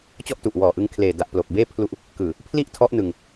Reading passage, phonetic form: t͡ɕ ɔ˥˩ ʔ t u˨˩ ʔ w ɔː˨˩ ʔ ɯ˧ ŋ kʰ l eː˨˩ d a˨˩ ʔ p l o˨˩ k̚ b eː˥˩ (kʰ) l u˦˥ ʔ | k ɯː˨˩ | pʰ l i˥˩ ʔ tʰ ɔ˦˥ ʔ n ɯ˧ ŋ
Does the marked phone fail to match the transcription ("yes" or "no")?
yes